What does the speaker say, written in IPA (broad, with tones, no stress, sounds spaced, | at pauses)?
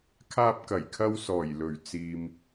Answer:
kʰ aː˥ p̚ k ɐ˨˩ j kʰ ɐ˥ w s ɔː˨˩ j l ɵ˨˩ ɥ t͡s iː˨ m